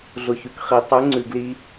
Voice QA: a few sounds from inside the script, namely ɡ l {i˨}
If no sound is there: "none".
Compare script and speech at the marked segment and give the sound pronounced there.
i˧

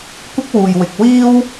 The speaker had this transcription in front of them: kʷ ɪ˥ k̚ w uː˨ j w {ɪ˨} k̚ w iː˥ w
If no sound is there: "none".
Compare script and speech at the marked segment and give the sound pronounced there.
ɪ˨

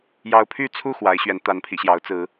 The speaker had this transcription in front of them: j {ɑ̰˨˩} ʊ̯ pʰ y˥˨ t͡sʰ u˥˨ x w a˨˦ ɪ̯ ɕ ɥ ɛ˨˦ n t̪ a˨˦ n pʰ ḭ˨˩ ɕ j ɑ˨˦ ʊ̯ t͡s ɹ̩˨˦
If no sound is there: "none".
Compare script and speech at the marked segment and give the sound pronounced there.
ɑ˦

